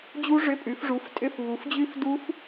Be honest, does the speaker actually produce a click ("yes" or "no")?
no